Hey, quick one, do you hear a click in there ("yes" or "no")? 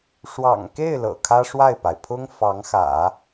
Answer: no